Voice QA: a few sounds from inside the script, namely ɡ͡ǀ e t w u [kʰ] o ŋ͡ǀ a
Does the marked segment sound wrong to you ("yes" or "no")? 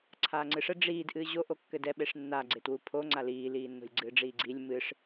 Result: yes